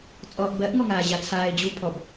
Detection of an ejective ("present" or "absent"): present